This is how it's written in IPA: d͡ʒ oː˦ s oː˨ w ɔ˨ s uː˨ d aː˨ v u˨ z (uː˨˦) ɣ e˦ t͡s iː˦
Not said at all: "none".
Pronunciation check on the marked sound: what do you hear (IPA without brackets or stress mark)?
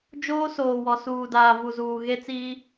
uː˨